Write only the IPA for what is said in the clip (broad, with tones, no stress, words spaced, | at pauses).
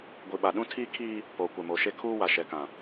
ɡʷi˨ɓa˨ ɗũ˦tʰiː˦kʰiː˦ | poː˨kʷɛ˨mo˨ʃe˦ kʰuː˦wa˨ʃɛ˨kã˨